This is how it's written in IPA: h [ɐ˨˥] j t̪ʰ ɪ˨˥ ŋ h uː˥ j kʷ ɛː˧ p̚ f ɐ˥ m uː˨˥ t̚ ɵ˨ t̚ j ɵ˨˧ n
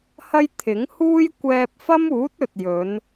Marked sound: incorrect: ɐ˥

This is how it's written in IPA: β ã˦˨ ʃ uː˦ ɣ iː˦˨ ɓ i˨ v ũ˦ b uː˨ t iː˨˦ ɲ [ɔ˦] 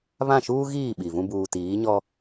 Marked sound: correct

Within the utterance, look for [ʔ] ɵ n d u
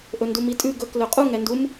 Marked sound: correct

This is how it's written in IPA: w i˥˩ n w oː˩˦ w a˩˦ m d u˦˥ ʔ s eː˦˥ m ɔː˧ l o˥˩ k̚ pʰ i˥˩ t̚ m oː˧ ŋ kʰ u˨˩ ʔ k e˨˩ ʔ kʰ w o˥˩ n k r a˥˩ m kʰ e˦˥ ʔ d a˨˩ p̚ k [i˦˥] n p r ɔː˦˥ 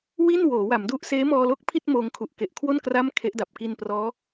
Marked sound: incorrect: i˧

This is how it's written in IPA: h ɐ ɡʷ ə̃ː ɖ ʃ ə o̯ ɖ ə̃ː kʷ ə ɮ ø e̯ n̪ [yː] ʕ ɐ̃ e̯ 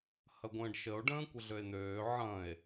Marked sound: incorrect: øː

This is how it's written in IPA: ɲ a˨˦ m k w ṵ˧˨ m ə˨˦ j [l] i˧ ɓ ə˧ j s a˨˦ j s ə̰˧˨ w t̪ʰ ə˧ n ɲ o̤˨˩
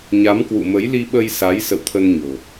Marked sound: correct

